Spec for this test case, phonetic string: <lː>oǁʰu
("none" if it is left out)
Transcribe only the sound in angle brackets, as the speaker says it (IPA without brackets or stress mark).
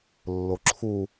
lː